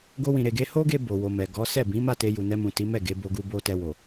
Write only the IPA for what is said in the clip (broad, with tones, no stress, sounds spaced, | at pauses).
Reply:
ɡ o˦ w ĩ˧ ɾ e˧ ɡ e˦ h o˦ ɡ e˧ b o˨ w o˨ m ɛ˨ ɡ ɔ˨˦ s ɛ˦˨ b ĩ˨˦ m a˦˨ t e˧ j u˨ n ɛ˧ m ũ˨ t i˨˦ m ɛ˦˨ ɡ e˨˦ b o˧ ɡ u˧ b o˧ t ɛ˧ w o˨